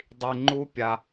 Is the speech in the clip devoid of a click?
no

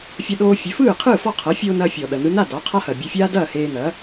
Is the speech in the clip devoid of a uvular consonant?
no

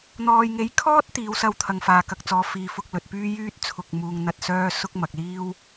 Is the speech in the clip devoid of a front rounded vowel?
no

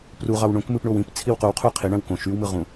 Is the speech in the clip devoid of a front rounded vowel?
no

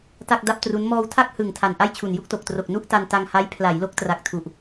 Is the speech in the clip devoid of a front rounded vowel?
yes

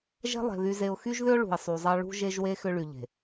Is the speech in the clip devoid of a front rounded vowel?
no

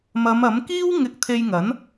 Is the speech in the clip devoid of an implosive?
yes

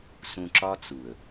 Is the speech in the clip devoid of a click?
no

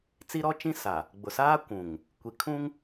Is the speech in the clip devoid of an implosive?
yes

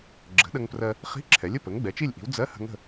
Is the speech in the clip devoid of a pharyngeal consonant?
yes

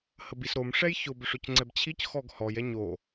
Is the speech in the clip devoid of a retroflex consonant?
no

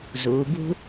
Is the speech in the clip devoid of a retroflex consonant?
yes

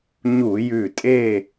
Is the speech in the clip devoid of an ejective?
no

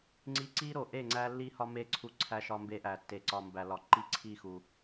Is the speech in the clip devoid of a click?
no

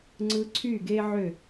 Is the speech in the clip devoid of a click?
no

